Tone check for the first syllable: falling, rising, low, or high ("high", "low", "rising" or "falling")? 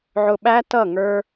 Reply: low